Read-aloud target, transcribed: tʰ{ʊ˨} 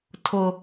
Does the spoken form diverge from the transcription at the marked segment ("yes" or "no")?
no